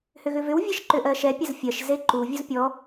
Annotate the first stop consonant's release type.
click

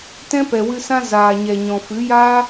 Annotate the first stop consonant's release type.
plain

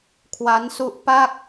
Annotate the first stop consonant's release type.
aspirated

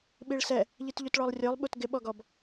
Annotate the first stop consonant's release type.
implosive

